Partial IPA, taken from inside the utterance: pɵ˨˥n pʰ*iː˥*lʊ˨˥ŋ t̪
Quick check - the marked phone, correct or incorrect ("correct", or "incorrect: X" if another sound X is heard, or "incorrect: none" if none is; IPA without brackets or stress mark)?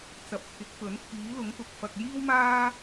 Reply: incorrect: iː˨˥